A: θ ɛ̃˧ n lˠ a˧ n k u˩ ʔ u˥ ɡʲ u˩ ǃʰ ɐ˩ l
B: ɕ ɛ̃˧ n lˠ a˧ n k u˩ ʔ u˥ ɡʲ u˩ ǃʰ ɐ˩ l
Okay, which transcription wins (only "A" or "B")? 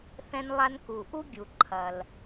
A